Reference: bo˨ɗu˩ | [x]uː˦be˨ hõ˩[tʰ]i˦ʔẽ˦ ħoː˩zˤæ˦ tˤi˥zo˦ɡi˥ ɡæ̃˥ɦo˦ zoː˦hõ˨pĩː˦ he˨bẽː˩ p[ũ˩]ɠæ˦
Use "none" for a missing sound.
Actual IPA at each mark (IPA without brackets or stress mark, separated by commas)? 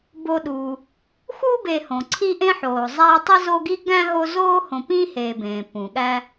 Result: x, ǀʰ, ũ˩